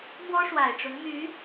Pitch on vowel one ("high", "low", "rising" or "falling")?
high